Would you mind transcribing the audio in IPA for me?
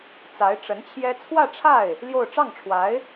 t͡s a˧˥ ɪ̯ ʈ͡ʂ ə˧˥ n t͡ɕʰ j ɛ˥ t͡sʰ w ä˥˧ ʈ͡ʂʰ a˥˩ ɪ̯ | l j o˥˧ ʊ̯ ʈ͡ʂ ɑ˥˩ ŋ ʈ͡ʂʰ w a˧˥ ɪ̯

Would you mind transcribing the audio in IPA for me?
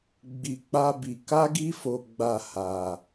ɡ͡b i˧ k͡p a˦ b i˧ k a˦ ɡ i˦ f o˧ ɡ͡b a˧ h a˧

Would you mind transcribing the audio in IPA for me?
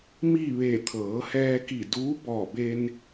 m i˥˨ ʋ e˧˩ t̪ʰ ɤː˩˧ h ɛː˧ k i˧˩ d uː˧˥ b ɔː˧˩ b e˧ n

